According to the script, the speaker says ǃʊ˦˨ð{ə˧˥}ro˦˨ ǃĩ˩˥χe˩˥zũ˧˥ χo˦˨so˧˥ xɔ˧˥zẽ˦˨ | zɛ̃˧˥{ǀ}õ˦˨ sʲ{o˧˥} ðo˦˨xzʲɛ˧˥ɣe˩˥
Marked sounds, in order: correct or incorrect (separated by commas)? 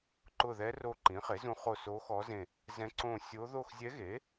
incorrect, correct, correct